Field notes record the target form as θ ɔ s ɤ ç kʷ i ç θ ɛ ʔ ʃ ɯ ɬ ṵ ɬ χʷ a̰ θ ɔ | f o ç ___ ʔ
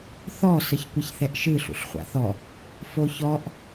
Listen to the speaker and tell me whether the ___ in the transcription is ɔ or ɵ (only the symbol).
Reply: ɔ